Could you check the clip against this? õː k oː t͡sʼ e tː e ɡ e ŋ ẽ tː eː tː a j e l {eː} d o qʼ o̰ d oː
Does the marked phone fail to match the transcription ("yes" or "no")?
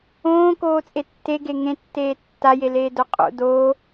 no